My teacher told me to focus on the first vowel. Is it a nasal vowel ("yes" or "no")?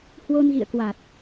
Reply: no